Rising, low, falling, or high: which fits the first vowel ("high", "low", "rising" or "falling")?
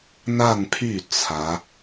falling